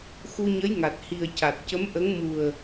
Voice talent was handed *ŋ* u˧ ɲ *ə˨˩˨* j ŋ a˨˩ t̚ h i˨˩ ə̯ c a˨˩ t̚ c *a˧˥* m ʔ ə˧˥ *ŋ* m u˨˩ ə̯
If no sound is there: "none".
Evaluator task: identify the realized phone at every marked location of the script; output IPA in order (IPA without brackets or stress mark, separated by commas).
x, ə˧˥, ə˧˥, ŋ